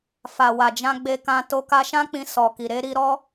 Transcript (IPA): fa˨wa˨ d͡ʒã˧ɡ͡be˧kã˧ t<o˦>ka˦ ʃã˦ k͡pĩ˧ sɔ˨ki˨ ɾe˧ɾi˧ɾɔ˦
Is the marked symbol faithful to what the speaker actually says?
yes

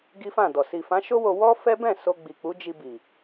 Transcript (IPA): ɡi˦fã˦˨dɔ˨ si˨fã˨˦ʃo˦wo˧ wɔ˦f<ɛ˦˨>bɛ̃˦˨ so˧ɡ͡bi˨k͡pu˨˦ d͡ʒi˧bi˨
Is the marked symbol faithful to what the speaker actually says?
no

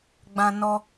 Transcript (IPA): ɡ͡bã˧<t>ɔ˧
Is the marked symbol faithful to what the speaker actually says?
no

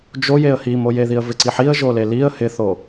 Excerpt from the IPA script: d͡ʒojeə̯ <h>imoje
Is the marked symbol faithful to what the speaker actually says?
yes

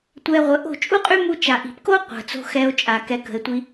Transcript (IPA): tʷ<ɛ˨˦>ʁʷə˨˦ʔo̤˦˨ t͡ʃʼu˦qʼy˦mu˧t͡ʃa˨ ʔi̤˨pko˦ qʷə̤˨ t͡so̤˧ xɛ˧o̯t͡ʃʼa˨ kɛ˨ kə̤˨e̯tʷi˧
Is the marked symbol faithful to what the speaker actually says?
no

